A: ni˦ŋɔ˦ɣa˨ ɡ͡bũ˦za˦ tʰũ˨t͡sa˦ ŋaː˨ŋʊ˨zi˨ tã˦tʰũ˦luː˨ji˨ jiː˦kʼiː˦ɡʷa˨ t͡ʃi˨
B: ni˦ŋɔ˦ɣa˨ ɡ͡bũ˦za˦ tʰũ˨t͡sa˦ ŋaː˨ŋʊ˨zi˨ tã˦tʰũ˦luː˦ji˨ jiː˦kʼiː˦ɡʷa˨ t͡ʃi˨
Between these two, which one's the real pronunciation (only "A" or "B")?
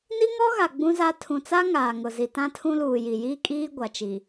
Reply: A